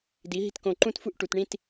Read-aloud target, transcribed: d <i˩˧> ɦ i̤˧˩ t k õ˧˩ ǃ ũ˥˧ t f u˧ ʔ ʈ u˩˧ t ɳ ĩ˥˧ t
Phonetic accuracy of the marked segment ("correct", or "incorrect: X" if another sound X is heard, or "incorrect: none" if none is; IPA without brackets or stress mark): correct